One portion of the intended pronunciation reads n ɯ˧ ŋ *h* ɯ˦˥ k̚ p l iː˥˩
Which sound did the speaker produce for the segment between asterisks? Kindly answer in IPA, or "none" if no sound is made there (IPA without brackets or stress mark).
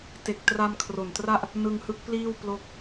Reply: h